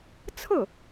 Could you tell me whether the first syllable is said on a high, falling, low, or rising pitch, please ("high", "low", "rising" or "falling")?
falling